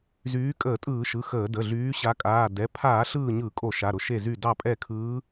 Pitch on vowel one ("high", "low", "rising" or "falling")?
rising